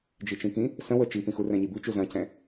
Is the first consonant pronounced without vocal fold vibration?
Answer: no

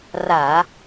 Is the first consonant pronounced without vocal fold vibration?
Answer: no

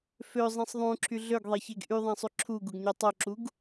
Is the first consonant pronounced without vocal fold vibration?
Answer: yes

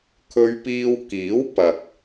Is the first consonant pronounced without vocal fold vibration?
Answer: yes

